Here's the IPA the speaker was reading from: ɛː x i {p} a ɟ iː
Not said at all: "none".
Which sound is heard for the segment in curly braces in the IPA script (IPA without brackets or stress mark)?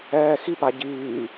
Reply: p